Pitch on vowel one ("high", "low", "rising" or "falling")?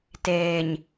low